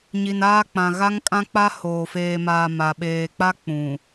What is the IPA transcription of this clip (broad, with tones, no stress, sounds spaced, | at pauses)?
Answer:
ɲ i˨ n aː˦ k͡p ã˨ ɣ a˦ ŋ kʼ ã˦ k͡p a˦ h oː˨ f eː˨ m aː˨ m a˨ ɓ eː˨ k͡p a˦ k͡p ũ˨